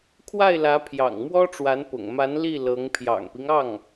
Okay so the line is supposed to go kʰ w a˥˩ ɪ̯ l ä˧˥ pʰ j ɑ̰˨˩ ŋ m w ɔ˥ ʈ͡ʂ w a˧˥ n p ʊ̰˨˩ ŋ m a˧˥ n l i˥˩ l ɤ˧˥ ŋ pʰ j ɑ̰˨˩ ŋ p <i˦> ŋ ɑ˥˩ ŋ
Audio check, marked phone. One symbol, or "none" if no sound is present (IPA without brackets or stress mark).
i˦